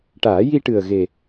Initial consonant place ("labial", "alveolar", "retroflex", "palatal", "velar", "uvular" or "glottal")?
retroflex